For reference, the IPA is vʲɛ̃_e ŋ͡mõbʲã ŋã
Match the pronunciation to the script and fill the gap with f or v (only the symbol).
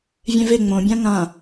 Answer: v